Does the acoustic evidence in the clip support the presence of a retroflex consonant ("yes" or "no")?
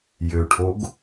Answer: yes